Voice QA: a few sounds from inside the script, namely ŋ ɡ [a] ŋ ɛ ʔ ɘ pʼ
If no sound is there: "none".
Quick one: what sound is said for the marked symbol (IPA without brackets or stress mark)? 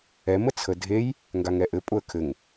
a